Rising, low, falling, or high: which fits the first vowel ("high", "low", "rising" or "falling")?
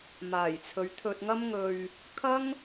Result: low